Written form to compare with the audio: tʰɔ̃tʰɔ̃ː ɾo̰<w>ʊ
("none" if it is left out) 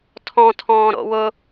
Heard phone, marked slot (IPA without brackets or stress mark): w